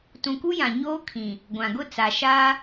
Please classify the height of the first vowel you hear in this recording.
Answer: high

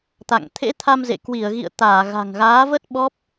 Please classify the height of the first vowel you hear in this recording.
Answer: low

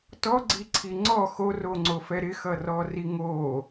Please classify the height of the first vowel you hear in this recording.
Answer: mid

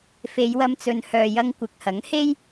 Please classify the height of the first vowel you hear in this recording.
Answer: mid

